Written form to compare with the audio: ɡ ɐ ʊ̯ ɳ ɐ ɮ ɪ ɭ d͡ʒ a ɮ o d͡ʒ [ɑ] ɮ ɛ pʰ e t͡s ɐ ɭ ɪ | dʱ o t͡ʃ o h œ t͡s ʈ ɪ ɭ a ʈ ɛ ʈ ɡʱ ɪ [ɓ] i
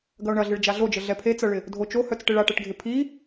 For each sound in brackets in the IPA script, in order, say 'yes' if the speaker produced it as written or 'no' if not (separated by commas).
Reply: no, no